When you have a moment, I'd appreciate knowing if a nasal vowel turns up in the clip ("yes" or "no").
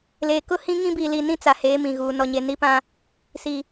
yes